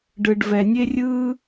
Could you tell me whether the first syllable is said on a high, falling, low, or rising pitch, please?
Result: low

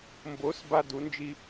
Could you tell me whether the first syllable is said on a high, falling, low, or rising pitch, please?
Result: rising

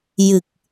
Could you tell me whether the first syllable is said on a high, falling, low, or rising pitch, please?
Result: low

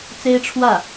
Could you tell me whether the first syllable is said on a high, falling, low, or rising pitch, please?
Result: high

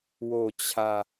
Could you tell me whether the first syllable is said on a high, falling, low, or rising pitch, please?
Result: low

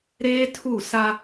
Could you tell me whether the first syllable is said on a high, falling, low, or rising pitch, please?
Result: high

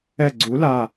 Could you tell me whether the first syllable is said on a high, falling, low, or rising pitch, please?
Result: falling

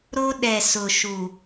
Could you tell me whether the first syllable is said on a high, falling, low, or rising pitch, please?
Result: high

